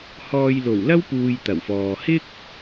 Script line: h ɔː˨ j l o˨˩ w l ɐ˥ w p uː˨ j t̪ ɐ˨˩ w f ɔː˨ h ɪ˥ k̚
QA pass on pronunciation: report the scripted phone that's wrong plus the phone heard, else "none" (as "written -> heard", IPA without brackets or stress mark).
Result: none